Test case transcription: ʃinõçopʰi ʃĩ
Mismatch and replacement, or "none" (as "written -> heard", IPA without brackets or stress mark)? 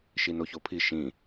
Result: õ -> o